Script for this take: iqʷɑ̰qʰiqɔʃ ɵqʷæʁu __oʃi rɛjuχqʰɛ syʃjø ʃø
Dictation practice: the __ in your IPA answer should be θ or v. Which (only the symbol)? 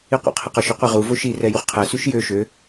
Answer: v